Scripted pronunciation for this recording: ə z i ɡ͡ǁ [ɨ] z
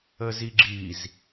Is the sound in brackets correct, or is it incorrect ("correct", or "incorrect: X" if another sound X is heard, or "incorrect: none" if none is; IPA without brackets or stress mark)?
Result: incorrect: i